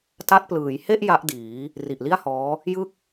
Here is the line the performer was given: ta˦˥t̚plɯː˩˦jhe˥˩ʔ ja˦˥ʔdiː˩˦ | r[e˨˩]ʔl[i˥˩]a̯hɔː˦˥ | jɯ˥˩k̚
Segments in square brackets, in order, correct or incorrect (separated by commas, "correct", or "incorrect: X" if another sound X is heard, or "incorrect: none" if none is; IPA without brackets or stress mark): incorrect: i˨˩, correct